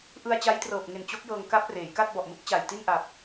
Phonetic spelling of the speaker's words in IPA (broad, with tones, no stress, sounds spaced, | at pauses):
ʔ ɯ˧ a̯ t͡ɕ a˦˥ j t r ɤː˨˩ p̚ ŋ e˨˩ n t͡ɕ o˦˥ k̚ j ɤː˧ ŋ k a˦˥ p̚ r eː˩˦ j k a˥˩ t̚ b ɔ˨˩ ʔ m ɯ˦˥ k̚ t͡ɕ a˨˩ j t i˥˩ n ʔ a˨˩ p̚